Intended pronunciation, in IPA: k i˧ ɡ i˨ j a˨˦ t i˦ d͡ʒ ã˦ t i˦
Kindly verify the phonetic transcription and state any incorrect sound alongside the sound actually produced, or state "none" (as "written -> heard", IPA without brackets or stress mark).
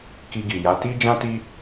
none